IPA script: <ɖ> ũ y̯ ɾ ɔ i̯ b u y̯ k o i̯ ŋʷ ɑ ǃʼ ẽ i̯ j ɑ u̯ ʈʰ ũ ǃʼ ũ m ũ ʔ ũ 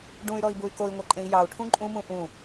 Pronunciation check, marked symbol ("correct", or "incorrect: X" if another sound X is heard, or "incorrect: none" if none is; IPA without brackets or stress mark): correct